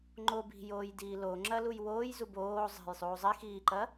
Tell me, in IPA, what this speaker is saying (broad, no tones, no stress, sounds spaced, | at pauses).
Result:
ŋ͡ǃ o b i̤ j oː j d iː l o ŋ͡ǁ ɐ l u j w oː j z u b oː zˤ e̤ j sˤ uː zˤ i x iː ǃ ɐ